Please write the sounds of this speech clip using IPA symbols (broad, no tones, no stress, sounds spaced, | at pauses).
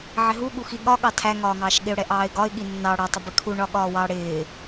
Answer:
ʕ ɪ ɦ u ɠ u x i ɠ ɒ ɠ ɑ tʰ æ ŋ ɒː ŋ ɑː ʃ ɠ ɪ ʊ̯ ɽ ɛ ʔ ɑː ɪ̯ ɡ ɒ ɪ̯ ɠ i nː ɑ ɽ ɒ tˤ ɪ b ɪ kʰ u ɳ ɒ ɠ ɒː w ɑ ɽ ɪː